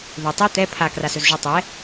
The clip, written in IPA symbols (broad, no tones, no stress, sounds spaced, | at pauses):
ð ɵ tˤ u t̪ ɛ pʰ a k r a s ɵ z ʒ u tˤ ɛ